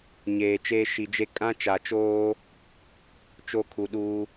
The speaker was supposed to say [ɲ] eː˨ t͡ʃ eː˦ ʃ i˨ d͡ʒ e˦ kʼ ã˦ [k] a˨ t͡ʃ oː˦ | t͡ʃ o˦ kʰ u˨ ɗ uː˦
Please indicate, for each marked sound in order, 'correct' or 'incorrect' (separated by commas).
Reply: correct, incorrect